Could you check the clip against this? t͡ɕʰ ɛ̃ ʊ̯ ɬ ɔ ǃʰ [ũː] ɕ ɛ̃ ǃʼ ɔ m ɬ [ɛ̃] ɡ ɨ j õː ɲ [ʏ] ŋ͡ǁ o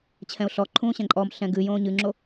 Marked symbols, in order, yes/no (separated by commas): yes, yes, no